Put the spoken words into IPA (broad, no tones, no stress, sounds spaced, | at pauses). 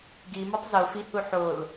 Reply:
ɡ i m o tˤ z o f i h u ħ o l